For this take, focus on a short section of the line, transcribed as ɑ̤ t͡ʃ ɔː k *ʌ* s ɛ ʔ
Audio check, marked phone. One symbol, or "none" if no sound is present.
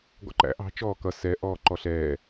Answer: ʌ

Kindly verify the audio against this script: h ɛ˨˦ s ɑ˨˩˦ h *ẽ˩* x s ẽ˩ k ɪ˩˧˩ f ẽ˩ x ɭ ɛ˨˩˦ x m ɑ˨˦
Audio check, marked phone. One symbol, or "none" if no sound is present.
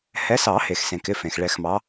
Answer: e˩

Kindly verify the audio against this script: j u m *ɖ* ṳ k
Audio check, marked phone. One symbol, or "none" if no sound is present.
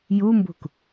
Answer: b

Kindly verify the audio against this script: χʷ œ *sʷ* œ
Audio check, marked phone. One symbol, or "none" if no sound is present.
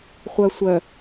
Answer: sʷ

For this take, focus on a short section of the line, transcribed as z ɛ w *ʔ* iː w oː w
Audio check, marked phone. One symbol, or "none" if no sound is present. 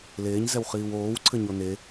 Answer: χ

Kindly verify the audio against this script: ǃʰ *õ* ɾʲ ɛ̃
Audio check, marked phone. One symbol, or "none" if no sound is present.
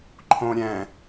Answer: õ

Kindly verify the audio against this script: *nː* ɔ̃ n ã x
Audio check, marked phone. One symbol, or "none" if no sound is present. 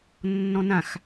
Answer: nː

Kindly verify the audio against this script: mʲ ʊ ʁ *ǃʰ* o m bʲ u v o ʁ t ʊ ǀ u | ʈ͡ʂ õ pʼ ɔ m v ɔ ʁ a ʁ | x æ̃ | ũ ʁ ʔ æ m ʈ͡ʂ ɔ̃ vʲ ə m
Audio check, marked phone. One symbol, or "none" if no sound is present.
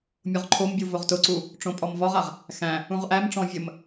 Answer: ǃʰ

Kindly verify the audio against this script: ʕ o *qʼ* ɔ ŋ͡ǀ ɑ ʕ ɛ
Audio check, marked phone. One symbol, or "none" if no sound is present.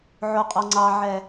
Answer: qʼ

